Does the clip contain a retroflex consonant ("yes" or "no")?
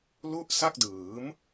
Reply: no